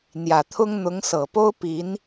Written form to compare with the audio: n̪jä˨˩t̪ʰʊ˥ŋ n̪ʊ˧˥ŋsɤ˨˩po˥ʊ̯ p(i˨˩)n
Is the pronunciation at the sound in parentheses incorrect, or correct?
incorrect